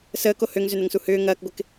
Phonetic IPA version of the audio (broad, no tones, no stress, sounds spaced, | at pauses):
s əː k o h ø ŋ z ʏ n ə ŋ s u h ʏː ŋ ɐː k ɡʷ ɪ k